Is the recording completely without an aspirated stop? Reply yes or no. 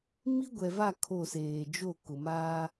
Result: no